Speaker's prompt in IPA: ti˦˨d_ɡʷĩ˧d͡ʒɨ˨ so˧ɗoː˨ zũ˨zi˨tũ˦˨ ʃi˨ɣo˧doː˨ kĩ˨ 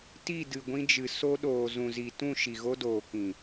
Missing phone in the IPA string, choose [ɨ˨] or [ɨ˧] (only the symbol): ɨ˨